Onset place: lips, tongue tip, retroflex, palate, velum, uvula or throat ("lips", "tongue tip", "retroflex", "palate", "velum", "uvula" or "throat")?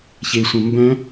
palate